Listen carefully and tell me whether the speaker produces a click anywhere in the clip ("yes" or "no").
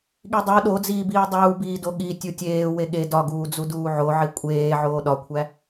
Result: no